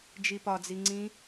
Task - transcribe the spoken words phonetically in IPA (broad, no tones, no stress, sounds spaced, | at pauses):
d͡ʒ i p ɒ d͡z i ŋ͡ǀ ĩ